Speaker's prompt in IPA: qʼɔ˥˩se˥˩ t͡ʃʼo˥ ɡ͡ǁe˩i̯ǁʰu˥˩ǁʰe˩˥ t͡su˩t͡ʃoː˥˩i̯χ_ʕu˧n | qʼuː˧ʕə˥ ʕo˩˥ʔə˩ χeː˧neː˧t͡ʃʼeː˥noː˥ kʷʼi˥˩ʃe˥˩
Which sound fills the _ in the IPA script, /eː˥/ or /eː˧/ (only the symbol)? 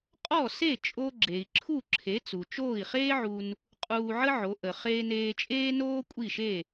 eː˥